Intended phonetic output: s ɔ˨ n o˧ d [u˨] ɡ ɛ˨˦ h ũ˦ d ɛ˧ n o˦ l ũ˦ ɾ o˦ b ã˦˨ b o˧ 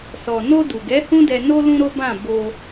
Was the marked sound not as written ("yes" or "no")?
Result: no